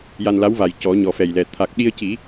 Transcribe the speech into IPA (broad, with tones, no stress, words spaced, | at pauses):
ja˧nla˧˥wva˨˩j cɔ˨˩˦ɲɔ˨˩ fɛ˨˩jlɛ˨˩ t̪ʰa˨˩k̚ɗi˧ə̯ci˨˩˦